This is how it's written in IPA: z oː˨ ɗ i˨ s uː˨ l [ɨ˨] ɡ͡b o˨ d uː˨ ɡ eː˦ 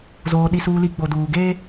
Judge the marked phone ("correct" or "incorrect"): incorrect